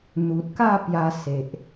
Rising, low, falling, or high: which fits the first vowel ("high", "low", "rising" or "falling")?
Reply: low